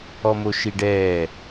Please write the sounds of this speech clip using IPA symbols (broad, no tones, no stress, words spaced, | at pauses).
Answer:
ɔmoʃiɖɛː